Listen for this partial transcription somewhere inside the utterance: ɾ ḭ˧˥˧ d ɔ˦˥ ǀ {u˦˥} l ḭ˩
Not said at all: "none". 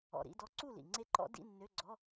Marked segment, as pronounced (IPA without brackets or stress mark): u˥˨